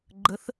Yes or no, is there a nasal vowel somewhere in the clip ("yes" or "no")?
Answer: no